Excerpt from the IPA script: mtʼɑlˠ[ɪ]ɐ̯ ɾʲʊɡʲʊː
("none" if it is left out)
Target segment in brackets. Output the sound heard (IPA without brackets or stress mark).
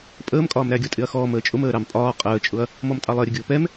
ɪ